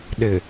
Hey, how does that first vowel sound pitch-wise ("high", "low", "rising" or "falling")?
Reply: low